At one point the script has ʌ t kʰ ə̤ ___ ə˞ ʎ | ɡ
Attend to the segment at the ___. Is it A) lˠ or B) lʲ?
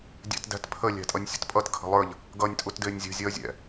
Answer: A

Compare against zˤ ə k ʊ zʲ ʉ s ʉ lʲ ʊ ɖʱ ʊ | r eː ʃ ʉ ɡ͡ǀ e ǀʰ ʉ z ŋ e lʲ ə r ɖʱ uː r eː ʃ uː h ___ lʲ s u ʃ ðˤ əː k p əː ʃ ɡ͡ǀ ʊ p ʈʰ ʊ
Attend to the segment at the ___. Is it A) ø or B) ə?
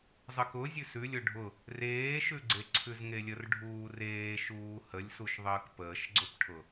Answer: B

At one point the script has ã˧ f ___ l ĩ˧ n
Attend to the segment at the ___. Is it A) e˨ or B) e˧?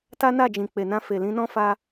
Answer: A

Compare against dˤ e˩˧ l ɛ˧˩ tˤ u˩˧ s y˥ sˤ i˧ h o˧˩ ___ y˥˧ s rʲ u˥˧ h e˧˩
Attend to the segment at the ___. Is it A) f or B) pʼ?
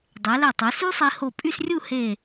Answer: B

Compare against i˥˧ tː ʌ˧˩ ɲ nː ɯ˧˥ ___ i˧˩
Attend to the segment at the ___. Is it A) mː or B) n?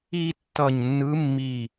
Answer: A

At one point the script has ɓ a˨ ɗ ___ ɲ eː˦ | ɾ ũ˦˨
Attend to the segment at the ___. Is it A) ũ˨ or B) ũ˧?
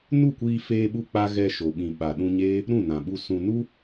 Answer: B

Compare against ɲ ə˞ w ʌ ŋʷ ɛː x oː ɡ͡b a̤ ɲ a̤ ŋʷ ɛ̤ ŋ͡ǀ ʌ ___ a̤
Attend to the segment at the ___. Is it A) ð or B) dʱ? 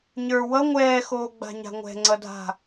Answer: B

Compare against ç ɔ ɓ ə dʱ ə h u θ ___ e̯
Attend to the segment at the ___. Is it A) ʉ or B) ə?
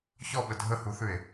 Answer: A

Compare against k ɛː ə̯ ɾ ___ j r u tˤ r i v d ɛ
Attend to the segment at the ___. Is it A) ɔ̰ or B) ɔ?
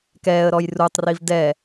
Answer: B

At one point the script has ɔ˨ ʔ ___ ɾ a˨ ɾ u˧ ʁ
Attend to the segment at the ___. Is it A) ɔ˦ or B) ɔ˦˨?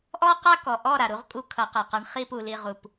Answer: B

